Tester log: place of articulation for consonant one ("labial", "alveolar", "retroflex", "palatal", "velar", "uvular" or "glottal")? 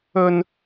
alveolar